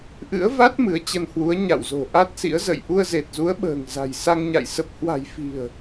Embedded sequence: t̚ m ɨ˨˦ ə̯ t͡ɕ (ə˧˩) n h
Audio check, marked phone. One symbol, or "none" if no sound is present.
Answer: ə˧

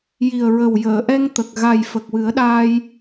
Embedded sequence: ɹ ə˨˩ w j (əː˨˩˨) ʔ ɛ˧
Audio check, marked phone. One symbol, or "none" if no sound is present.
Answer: əː˨˩˨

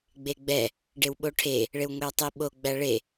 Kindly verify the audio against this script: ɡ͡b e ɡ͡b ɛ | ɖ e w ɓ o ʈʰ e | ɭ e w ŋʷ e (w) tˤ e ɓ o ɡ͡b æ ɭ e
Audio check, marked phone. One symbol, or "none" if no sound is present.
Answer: w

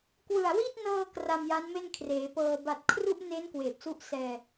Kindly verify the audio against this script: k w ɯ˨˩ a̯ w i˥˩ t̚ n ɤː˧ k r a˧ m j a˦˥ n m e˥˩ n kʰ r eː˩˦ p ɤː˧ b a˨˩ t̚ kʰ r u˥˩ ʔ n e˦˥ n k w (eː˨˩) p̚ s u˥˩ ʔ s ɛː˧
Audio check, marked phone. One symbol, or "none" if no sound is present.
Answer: eː˨˩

